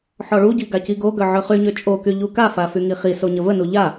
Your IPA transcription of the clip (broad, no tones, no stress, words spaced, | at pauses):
ħɔɭuɟi ɡaciɡoɡœ ʕøχyɲø t͡ʃʼoky ʎukafa fyŋiχiso ɲəvənu ʎa